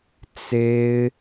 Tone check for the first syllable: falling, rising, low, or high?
high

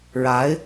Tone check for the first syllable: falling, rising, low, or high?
rising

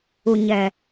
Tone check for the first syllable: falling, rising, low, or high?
low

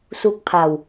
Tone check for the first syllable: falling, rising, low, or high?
falling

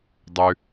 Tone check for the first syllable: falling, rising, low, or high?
low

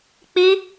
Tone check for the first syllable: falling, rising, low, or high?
high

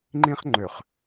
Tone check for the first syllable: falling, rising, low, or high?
high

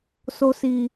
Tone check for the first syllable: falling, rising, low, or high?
high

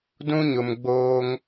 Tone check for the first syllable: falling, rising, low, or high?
high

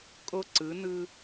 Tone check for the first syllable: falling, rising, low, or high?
high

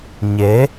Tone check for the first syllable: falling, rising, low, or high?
rising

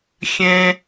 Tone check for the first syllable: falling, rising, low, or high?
low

